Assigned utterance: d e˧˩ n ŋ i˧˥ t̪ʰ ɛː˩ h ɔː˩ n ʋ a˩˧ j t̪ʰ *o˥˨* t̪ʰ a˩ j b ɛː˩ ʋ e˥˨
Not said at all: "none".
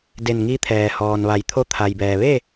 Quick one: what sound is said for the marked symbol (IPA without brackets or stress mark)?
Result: o˧